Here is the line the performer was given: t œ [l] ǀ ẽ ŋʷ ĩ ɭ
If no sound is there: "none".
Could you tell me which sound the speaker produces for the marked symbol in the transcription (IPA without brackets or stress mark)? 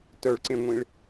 ɭ